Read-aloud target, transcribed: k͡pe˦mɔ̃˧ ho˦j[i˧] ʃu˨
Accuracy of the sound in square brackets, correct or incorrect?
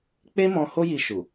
correct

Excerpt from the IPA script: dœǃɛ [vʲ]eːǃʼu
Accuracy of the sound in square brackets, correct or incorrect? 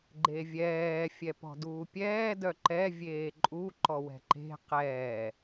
correct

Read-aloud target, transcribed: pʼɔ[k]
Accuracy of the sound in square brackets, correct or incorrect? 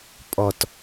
incorrect: t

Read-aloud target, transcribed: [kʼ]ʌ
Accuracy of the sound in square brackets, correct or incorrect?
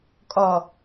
correct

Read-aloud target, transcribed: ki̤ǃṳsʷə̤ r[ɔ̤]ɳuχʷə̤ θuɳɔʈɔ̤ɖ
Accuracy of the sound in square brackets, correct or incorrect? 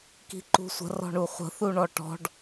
correct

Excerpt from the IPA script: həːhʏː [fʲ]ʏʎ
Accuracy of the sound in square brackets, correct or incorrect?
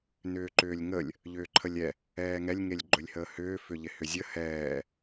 incorrect: f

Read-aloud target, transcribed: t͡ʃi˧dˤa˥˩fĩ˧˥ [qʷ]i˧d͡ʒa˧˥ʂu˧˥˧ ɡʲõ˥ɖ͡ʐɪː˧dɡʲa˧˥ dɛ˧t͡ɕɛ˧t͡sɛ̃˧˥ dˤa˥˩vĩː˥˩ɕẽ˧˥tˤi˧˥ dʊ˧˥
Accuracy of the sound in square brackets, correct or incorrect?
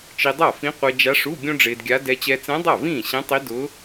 correct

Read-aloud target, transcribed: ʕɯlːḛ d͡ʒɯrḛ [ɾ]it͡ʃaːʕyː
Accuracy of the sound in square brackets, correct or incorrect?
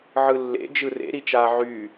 correct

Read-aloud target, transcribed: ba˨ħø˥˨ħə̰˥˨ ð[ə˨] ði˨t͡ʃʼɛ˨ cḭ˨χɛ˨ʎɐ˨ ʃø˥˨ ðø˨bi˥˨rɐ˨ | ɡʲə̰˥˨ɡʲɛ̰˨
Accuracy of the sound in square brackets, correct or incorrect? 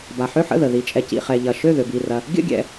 correct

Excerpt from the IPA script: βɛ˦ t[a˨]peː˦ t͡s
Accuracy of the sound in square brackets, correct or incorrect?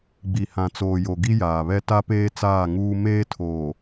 incorrect: a˦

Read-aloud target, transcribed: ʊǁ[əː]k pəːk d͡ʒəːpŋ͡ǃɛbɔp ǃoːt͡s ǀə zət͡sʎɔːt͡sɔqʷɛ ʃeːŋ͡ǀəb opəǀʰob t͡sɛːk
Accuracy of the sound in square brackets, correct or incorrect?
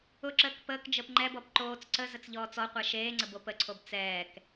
correct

